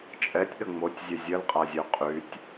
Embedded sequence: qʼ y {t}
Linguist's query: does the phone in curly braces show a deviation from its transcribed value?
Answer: yes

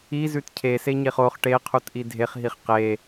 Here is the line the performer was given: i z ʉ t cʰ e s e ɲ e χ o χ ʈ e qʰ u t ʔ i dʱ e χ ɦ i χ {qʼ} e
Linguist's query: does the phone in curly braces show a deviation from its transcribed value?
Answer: yes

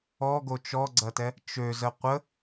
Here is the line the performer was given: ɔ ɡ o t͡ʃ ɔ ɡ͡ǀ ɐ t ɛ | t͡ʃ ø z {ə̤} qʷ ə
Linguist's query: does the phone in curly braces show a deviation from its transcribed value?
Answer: yes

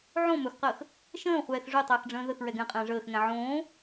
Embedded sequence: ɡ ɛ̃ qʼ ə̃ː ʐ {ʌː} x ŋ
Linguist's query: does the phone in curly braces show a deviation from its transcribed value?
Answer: yes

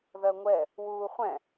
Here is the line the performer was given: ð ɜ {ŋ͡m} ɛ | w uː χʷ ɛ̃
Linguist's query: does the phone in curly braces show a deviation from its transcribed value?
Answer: yes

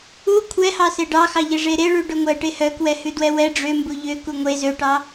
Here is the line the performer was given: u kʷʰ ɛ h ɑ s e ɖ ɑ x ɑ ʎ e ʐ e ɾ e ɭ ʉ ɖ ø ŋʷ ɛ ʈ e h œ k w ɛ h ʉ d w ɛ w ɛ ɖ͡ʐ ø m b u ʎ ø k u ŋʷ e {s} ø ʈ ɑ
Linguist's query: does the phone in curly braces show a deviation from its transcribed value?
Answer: yes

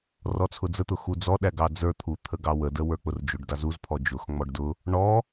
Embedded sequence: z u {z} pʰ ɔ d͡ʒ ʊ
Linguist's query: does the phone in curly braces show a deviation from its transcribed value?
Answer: no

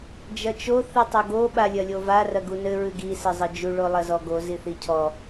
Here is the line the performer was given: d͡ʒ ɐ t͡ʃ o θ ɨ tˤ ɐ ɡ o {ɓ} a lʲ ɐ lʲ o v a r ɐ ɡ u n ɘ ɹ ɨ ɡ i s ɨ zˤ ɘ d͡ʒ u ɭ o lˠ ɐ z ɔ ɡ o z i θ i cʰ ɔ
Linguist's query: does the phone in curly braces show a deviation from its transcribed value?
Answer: no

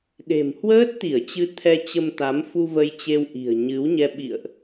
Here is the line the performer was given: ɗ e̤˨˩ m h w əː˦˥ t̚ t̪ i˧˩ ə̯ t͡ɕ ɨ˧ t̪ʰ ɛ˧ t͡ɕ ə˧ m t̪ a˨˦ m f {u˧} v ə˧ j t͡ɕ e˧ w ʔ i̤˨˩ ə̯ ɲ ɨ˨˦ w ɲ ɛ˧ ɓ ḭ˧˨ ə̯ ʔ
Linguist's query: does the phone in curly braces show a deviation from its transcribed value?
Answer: no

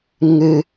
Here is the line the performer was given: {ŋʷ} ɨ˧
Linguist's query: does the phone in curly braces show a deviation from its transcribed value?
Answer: yes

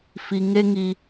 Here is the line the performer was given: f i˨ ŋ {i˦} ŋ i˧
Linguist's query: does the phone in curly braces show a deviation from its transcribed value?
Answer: yes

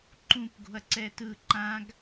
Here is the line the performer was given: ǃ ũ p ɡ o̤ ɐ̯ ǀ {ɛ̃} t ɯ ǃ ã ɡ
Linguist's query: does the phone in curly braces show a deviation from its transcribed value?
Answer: yes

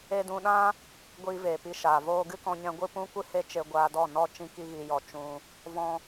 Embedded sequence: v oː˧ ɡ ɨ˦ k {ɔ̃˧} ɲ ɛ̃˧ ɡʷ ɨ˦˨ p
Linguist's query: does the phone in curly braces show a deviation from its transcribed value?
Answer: no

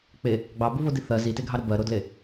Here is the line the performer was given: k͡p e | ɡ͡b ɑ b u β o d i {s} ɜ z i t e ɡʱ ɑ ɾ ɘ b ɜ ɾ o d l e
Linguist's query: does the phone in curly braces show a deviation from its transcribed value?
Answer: yes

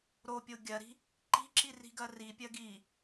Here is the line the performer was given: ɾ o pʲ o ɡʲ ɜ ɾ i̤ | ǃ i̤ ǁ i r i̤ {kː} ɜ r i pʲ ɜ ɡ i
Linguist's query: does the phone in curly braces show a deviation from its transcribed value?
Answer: yes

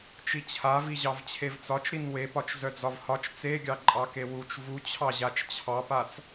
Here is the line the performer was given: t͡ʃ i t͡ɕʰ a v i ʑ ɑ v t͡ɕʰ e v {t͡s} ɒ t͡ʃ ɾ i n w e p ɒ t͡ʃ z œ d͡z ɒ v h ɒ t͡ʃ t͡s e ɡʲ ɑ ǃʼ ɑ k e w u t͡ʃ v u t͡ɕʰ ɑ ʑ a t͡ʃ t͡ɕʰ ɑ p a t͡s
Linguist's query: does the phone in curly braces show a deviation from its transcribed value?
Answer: no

